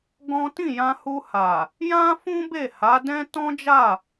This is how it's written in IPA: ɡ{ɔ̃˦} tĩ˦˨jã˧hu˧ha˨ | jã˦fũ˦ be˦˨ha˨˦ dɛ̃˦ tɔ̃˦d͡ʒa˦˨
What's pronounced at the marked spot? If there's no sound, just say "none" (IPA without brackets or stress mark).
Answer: ɔ̃˦